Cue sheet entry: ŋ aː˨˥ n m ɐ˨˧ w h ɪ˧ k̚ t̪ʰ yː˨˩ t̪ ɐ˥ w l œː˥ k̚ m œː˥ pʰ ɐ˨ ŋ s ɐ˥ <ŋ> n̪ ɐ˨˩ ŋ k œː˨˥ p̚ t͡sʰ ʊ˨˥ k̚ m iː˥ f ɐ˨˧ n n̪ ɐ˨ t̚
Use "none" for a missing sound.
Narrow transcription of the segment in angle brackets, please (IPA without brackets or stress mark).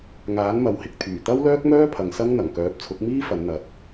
ŋ